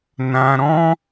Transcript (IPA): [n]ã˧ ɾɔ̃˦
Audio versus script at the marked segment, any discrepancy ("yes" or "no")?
no